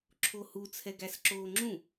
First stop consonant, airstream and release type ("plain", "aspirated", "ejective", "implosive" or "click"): click